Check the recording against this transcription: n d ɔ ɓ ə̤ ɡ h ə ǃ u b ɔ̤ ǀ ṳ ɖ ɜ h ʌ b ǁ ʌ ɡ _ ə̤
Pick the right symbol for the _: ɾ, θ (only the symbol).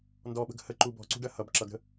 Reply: ɾ